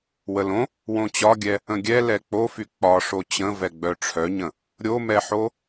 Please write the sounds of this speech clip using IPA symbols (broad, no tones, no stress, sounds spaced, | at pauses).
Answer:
w ə l õ | w õ t͡ɕ ɒ ɡʲ ɛ | ə̃ ɡʲ ɛ l ɛ k͡p o f y k͡p ɒ ʂ o t͡ɕ ə̃ v ɛ ɡ͡b œ ʈ͡ʂʰ œ ɲ ə̃ | ɾʲ o m ɛ ħ o